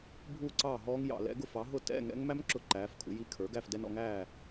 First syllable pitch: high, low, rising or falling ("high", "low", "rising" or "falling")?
falling